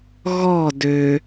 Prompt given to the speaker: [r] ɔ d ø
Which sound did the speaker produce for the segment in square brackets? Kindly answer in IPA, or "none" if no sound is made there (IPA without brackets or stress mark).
ɣ